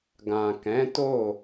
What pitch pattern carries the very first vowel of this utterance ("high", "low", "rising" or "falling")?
low